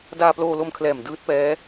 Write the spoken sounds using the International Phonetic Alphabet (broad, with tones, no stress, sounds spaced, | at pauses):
d aː˧ p l oː˧ l o˧ m kʰ l ɛː˨˩ m d ɯː˦˥ t̚ p ɛː˦˥